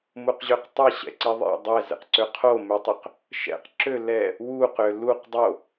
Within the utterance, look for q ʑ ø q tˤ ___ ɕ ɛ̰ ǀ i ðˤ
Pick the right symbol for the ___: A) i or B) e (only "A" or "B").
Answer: A